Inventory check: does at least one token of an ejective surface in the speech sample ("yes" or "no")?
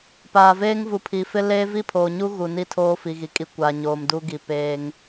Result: yes